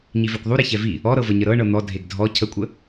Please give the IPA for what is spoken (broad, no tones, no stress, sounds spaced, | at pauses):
ɲ i v ɛ kʷ ðˤ u ɾ e ç ɛ v i | ɔ ɾ ɤ v ə ɲ ə ɾ ɤ ɳ ɤ n̪ ɔ dʱ e ɡ dʱ ɔ cʰ ə kʷʼ ə